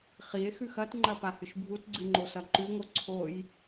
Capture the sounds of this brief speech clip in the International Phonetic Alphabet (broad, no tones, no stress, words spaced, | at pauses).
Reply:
χie̯xʉx ɐtŋ͡ǃɐ pahɨʃbʱutɡ͡ǀɨ ŋ͡ǃosɐǃʉŋo ǀʰoj